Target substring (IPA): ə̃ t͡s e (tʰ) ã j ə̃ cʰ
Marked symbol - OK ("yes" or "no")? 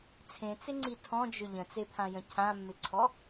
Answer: no